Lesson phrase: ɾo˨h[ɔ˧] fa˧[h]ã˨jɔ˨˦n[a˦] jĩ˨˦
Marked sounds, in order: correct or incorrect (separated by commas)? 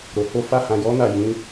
incorrect, correct, incorrect